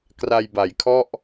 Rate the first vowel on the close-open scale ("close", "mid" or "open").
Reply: open